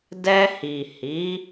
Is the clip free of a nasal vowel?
yes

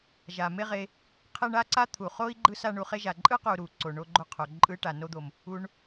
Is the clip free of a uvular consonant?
no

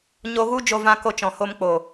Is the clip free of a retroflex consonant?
yes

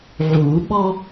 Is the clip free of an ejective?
yes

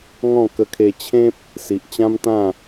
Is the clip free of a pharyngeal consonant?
yes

